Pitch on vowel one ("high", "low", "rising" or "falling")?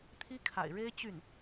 high